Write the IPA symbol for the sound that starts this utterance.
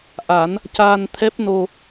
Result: ʔ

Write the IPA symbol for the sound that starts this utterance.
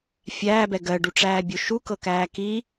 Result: fʲ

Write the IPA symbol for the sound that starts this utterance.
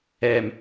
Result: ɛ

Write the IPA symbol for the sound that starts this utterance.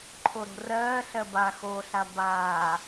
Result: ǃʰ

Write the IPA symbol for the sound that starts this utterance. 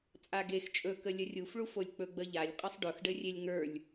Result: t͡sʼ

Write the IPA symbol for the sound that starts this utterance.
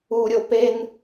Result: u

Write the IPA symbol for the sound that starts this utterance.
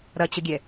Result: ɾ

